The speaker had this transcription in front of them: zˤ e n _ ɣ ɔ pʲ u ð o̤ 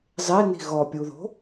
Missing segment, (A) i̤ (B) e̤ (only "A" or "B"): A